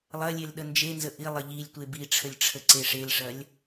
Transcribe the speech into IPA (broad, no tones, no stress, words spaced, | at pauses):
lˠɐlʲel ɗənd͡ʒenzə ʔilˠə ʎilʲtʷe biʈ͡ʂʰəlʲ ʈ͡ʂʰəǀeʂelʂɐlʲ